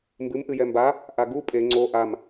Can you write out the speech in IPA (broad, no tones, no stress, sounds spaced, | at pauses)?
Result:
m b ɨ m ʔ ɨ j ɛ m b a | ʔ a ɡ u pʼ e ŋ͡ǀ o ʔ a m